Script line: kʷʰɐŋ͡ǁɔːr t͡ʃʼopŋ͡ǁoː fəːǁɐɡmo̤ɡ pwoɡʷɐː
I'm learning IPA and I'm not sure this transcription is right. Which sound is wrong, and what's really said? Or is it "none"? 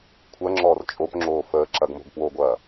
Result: none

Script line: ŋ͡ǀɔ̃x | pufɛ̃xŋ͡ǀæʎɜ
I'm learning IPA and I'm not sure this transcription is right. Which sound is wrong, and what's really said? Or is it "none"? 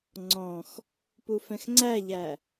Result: ɜ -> æ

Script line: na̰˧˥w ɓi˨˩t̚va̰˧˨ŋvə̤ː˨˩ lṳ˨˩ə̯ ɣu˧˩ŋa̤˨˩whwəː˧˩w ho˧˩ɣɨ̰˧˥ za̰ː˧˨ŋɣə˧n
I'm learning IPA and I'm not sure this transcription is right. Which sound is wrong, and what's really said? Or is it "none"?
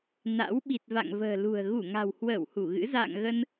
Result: o˧˩ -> u˧˩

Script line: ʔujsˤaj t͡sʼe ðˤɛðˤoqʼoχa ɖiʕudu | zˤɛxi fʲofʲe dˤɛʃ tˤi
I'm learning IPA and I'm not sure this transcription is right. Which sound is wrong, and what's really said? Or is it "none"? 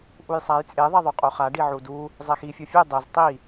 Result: ʃ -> z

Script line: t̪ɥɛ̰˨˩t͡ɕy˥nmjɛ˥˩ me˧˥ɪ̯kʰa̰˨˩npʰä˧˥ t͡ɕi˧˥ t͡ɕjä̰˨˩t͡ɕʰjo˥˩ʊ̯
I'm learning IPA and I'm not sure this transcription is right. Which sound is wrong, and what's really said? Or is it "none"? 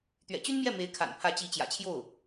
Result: none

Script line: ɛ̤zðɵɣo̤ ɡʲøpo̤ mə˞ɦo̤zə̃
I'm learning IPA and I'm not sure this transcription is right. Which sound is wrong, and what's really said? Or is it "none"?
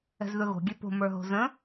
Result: none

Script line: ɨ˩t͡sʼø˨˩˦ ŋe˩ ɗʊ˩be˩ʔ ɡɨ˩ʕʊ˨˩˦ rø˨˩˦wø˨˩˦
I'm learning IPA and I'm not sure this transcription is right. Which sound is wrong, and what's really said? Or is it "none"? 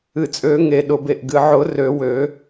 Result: none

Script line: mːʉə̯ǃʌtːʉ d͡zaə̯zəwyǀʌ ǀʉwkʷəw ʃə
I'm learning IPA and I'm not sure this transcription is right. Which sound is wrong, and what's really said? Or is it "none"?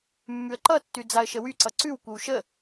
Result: z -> ʃ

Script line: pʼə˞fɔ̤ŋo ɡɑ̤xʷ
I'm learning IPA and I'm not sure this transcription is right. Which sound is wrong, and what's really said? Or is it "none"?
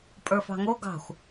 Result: ɔ̤ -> ɑ̤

